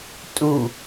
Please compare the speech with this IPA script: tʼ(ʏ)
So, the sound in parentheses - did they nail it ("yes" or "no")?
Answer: no